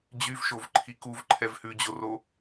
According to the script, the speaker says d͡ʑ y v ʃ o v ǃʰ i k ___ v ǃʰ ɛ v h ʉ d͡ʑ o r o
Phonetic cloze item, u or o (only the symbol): u